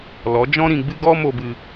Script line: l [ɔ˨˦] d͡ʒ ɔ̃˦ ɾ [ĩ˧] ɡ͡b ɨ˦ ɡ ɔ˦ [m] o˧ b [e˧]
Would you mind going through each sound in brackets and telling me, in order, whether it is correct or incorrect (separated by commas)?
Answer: correct, correct, correct, incorrect